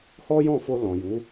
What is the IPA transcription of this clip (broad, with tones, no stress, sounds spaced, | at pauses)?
h ɔ˦ j ɔ̃˦˨ f o˧ l ɔ̃˨ j u˨˦